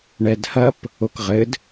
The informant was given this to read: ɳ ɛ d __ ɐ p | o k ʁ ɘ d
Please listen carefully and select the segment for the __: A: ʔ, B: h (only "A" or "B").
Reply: B